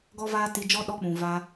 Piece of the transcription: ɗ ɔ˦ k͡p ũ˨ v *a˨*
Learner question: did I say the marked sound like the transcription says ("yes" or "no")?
no